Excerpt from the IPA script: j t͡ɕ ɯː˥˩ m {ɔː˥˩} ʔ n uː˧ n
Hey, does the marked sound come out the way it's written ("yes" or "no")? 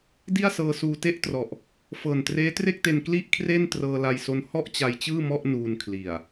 no